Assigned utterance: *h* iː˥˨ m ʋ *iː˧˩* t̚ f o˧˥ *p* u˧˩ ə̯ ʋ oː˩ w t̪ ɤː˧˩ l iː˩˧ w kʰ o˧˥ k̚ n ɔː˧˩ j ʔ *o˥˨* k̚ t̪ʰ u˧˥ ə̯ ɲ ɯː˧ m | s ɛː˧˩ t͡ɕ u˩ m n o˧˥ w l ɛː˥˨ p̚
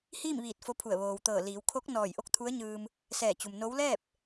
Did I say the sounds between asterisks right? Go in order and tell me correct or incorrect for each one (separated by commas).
correct, correct, incorrect, correct